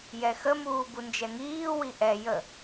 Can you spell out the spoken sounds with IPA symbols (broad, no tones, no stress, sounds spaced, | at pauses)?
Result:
j ɛ x ə m uː b u n d͡ʒ ɛ ŋ iː w i ʔ ɛ j ə